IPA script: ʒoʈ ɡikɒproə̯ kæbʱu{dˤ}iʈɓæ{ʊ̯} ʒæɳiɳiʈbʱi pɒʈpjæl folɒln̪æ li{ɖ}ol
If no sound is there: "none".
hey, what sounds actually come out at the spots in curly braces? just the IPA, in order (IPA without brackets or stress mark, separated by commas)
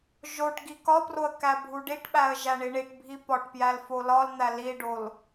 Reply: ɖ, ə̯, ɖ